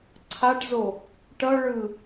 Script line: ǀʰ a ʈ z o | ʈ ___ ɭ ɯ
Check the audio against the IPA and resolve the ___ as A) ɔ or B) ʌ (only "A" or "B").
B